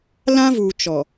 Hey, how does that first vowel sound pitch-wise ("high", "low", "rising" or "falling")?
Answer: high